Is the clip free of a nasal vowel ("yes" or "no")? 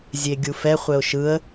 yes